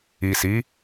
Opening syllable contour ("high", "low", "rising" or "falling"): low